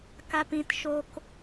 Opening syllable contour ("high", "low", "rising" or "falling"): low